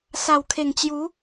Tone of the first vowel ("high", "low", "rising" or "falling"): low